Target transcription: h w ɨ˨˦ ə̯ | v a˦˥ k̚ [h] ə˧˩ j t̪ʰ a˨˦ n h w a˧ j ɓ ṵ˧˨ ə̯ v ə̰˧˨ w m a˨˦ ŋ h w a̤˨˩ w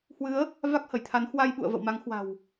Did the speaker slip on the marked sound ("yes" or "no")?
no